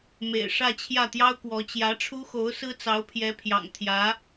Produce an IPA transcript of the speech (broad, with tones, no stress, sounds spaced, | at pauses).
m ḛ˨˩ ɪ̯ ʂ ä˥˧ t͡ɕʰ j ä˥˩ t̪ j ɑ˥ ʊ̯ k w ɔ˧˥ t͡ɕ j ä˧˥ ʈ͡ʂʰ u˥ x o˧˥ ʊ̯ s ɹ̩˥ t͡s ɑ˧˥ ʊ̯ pʰ j ɛ˧˥ pʰ j ɑ̰˨˩ ŋ t̪ʰ j ä˧˥